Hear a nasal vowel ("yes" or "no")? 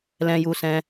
yes